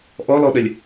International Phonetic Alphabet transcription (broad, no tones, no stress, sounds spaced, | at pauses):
ʔ ɔ l ɔ ɗ ə lʲ